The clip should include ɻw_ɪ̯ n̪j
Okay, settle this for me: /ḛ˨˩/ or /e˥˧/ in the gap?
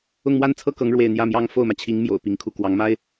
e˥˧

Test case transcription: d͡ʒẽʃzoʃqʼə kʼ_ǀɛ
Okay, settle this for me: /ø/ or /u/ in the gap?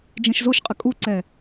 u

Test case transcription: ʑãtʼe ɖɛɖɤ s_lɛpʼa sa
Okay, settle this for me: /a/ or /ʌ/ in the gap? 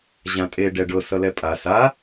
ʌ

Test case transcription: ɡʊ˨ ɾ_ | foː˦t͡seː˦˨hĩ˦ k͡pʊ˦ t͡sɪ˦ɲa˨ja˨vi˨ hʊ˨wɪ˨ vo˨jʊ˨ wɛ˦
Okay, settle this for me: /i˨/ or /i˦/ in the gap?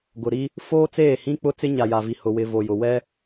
i˦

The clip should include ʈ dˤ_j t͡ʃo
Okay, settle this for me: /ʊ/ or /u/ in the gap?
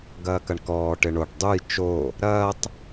u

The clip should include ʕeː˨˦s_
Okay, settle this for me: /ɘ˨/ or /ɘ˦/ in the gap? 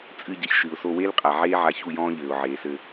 ɘ˦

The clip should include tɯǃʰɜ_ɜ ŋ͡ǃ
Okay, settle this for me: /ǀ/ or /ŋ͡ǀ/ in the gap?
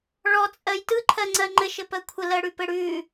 ŋ͡ǀ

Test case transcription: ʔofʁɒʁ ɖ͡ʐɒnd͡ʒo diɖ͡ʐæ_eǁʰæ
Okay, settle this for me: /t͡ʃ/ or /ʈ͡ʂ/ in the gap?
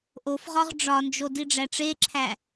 ʈ͡ʂ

